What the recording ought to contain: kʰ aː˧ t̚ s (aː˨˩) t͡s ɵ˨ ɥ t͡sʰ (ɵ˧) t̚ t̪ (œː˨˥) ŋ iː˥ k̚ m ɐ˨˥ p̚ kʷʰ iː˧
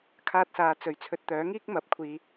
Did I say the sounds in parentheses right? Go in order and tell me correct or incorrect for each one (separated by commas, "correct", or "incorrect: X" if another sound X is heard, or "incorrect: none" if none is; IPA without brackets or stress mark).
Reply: incorrect: aː˨˧, correct, correct